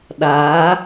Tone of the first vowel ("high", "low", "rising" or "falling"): rising